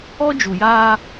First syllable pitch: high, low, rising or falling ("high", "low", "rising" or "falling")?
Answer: high